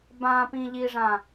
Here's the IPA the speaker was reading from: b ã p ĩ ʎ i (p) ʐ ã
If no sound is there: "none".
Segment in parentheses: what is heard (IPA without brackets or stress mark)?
none